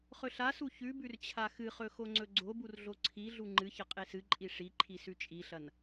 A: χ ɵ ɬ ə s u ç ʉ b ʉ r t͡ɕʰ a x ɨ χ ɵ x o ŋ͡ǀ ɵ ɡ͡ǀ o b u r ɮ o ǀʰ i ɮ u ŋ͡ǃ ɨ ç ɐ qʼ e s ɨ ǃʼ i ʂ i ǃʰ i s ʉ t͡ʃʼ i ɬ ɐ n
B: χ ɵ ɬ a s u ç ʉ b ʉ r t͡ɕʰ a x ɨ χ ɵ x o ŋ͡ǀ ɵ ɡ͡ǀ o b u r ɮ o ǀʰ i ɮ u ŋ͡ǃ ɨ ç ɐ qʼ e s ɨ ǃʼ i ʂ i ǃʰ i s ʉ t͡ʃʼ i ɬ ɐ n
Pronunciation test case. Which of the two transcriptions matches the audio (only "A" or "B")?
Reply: B